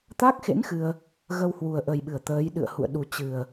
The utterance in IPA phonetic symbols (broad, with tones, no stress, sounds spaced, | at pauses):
t̪ a˦˥ k̚ x ḛ˧˥ n x ɨ˧ ə̯ | ɣ ə˧ w h w u˨˩ ə̯ ʔ ə˨˩ j ɓ ɨ˧˩ ə̯ t̪ əː˨˦ j ɗ ɨ̰˧˨ ə̯ h ṵ˧˨ ə̯ ɗ u˨˩ t͡ɕ ɨ˨˩ ə̯